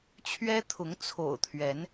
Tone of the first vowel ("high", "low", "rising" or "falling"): high